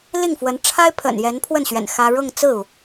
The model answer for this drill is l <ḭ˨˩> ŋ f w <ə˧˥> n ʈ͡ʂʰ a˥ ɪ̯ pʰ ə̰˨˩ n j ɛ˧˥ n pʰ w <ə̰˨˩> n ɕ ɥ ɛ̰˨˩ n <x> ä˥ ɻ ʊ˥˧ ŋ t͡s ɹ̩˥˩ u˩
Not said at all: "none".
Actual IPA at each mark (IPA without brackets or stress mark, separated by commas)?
i˥˩, ə˧˥, ə˥˩, x